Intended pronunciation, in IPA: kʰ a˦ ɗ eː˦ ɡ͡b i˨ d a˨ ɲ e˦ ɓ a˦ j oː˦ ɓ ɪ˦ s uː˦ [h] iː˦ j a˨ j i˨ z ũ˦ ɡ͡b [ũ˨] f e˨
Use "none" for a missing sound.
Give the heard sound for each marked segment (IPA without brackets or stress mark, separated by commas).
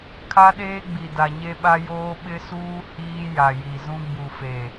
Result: h, u˨